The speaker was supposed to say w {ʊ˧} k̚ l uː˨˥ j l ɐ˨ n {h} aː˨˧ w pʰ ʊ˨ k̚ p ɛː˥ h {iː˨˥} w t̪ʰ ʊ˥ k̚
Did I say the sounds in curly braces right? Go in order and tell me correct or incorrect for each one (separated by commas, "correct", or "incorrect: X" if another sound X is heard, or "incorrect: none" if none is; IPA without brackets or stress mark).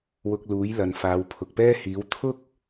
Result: correct, incorrect: f, correct